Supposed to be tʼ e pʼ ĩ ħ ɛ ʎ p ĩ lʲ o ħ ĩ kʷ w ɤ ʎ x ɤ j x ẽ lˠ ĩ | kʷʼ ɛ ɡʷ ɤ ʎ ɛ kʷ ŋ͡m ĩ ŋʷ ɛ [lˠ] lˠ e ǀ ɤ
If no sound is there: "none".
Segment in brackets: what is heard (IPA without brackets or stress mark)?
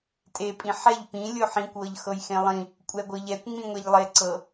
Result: ʎ